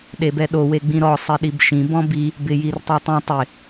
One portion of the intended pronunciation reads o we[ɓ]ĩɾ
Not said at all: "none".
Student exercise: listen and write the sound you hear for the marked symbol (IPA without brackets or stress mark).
ɡ͡b